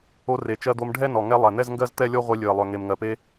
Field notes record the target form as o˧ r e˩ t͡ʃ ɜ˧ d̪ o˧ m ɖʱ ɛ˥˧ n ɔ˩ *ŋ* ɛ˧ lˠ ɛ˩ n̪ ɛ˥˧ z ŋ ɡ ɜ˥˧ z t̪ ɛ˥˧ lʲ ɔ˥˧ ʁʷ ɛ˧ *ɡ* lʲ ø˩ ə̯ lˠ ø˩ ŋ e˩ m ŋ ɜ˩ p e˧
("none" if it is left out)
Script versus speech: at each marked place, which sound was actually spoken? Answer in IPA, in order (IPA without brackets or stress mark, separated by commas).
ŋ, none